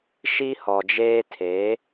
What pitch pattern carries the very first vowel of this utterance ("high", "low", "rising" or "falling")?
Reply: high